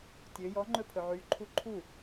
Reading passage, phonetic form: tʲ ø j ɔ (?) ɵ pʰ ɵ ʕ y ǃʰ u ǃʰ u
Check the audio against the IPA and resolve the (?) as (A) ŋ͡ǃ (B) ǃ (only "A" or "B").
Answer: A